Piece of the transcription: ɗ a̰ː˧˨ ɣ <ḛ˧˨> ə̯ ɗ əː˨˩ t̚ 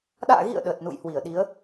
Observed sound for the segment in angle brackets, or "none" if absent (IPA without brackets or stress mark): ḭ˧˨